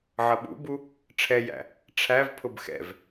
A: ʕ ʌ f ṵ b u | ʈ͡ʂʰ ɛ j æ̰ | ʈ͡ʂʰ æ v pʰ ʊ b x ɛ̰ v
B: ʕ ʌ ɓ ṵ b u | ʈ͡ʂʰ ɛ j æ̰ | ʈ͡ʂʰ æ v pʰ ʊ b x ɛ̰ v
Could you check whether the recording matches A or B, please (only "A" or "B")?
B